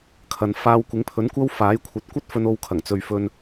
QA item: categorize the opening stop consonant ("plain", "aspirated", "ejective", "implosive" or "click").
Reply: aspirated